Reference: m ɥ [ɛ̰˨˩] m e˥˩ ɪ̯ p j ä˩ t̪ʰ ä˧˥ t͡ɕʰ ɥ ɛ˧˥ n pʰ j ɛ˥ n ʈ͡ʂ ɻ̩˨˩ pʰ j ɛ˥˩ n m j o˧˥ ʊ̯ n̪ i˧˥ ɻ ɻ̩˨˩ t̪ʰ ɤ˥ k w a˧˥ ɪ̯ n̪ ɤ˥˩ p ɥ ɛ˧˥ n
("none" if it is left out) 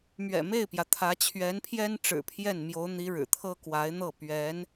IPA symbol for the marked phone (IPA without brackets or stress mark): ɛ̰˨˩